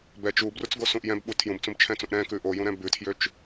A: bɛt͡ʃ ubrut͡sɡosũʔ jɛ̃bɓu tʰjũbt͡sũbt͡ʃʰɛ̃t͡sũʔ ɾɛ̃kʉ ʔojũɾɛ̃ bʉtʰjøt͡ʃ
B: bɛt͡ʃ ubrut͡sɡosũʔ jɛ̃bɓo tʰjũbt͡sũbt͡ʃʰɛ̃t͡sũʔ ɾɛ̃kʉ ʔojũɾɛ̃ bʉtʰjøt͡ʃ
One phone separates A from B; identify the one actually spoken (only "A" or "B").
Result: A